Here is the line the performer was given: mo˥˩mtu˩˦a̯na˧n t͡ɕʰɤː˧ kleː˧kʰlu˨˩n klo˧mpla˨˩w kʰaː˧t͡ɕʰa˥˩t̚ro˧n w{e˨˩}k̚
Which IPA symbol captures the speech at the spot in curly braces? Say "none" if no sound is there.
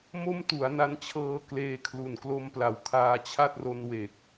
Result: e˨˩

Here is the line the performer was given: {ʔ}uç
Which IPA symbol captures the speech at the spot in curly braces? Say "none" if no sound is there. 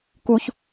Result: k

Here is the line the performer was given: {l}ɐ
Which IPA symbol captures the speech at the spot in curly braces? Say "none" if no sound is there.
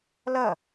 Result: l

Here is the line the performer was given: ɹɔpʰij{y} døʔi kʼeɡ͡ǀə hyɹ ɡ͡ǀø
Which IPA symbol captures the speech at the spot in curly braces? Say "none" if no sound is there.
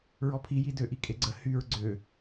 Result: i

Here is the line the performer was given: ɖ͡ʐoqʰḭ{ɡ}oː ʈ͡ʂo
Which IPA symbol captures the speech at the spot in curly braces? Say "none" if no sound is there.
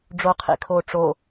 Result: kʰ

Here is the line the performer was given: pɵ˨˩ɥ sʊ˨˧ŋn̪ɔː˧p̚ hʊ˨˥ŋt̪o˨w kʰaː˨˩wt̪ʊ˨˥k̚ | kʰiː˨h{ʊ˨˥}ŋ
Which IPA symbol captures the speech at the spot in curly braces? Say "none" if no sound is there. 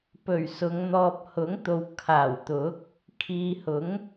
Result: ʊ˨˥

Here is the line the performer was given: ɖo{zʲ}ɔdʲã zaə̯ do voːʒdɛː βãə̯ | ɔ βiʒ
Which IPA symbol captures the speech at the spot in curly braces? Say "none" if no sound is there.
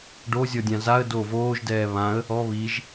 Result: zʲ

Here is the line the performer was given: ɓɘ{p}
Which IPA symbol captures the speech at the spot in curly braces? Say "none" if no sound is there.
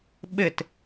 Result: t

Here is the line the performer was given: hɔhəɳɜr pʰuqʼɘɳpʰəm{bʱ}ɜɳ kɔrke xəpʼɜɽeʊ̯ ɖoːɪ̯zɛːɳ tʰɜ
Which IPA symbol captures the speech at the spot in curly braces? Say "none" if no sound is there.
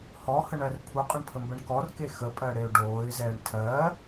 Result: b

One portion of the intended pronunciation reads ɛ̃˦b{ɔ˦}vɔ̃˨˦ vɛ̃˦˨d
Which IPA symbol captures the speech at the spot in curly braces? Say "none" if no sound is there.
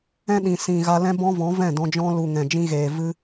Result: ɔ̃˦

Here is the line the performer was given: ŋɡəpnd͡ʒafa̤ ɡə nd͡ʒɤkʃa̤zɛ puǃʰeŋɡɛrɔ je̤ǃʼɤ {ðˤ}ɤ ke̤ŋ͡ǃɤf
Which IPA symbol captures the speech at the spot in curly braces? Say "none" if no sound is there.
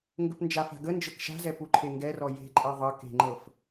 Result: ðˤ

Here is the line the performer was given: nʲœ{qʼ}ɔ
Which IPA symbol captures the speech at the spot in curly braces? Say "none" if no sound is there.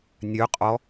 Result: qʼ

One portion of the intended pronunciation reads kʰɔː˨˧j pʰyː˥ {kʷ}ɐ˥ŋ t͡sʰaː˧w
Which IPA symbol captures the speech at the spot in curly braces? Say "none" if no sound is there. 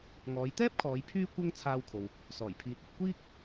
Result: kʷ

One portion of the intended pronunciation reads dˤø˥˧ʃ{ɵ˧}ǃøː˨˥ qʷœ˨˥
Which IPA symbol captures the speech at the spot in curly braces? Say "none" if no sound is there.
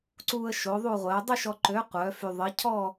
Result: ɔ˧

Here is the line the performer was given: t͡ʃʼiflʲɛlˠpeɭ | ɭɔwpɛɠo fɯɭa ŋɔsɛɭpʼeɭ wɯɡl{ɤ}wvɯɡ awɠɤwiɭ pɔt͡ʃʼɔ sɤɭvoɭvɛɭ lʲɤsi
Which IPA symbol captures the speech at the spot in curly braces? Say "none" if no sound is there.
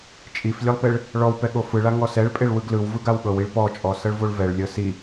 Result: ɯ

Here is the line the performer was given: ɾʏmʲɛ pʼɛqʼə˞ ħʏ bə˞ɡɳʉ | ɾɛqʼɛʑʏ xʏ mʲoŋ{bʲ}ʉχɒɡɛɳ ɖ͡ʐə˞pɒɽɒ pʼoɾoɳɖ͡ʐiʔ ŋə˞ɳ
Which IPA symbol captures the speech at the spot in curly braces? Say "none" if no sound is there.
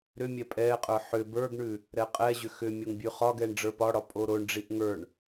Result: bʲ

